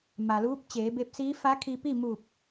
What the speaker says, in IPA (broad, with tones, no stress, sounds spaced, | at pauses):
m a˩ l uː˧˥ p̚ t͡ɕ eː˩˧ b e˧ p̚ s iː˧˥ f a˧˥ kʰ i˧ p i˥˨ m u˧˩ p̚